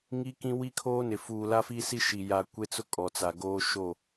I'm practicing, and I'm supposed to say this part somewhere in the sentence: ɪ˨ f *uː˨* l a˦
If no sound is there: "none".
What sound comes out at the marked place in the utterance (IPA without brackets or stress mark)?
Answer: uː˨